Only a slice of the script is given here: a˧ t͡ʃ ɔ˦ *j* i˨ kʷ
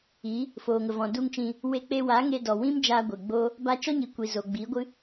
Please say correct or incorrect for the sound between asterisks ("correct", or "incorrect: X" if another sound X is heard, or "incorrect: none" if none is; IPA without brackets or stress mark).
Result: incorrect: ɲ